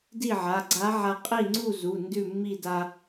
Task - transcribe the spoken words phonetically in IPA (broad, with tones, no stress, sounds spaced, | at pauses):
d i˥˨ ʕ a˩˧˩ ɡ͡ǀ a˧˥ ʕ a˧ qʼ i˥˨ ŋ͡ǀ u˥˨ z u˩˧˩ n d ʉ˥˨ mː i˥˨ d a˧